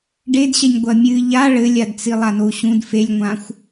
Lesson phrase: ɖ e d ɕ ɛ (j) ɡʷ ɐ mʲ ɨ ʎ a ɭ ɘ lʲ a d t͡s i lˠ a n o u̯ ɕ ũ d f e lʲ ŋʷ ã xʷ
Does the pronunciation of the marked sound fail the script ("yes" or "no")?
yes